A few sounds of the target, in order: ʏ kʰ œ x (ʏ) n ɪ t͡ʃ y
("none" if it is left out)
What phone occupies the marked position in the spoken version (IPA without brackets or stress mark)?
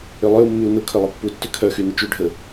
y